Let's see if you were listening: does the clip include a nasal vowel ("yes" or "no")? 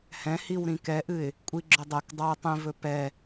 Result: yes